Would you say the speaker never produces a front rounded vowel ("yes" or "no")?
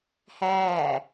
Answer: yes